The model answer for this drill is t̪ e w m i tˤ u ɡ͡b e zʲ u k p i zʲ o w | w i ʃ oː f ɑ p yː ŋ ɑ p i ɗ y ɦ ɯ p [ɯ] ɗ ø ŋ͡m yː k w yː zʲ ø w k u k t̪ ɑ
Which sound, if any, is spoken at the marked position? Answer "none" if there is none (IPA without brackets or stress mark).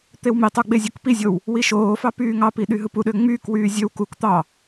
u